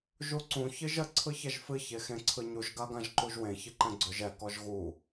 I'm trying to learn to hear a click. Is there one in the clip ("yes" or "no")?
yes